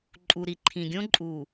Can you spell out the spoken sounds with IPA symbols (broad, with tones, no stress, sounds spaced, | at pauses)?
ǃʼ u˨ ɾ i˨ ǃʰ ĩ˨ ɡʲ õ˦ ǃʼ u˨